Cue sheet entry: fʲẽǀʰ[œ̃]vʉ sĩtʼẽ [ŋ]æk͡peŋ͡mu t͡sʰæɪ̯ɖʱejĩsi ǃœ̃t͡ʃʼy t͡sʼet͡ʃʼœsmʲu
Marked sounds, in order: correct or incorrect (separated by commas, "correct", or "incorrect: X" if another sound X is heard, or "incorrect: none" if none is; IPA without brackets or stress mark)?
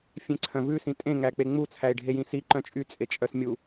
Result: correct, correct